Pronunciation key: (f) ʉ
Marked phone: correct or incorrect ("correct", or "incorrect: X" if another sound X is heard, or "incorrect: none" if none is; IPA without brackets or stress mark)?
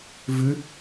incorrect: v